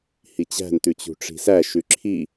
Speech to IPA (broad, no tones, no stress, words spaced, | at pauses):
hit͡ɕæ̤n tʉt͡ɕṳʈ͡ʂi̤sæ ʃʉǁʰi